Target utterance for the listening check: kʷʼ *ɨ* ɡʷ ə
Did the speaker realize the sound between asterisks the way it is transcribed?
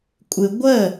yes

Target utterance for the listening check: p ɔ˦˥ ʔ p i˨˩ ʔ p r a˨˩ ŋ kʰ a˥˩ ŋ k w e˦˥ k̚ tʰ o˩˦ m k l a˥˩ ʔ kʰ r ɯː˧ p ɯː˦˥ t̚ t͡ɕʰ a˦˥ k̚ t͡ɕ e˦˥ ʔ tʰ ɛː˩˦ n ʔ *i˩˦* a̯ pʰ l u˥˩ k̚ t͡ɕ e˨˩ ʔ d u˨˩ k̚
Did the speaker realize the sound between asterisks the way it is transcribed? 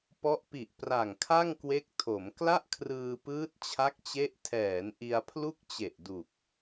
no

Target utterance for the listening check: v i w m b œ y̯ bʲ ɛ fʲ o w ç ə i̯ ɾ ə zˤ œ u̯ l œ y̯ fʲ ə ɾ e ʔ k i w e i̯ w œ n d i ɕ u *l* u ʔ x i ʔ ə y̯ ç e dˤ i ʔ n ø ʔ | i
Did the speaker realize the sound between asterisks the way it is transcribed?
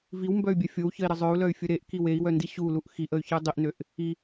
yes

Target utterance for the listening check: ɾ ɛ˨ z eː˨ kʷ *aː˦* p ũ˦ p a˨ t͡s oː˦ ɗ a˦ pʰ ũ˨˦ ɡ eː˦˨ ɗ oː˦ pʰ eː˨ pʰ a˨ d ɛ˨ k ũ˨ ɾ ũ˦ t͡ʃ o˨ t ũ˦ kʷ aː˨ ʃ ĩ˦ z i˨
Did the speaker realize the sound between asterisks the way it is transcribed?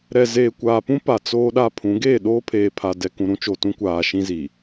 no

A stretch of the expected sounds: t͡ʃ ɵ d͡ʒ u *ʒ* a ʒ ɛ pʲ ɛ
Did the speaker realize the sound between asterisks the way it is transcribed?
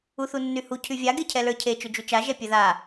no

